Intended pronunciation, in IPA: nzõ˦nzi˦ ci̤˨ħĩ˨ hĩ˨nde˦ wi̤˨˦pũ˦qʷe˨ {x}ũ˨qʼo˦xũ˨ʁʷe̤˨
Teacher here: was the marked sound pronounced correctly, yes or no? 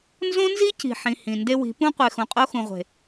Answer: yes